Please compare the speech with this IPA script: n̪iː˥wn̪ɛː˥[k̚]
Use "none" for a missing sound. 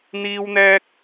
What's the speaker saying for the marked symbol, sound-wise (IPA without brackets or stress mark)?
k̚